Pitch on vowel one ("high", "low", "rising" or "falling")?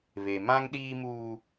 low